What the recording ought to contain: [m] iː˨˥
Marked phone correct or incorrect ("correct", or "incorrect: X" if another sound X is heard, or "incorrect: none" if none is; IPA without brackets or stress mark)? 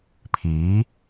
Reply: incorrect: pʰ